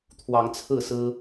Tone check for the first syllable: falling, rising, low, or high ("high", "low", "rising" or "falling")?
rising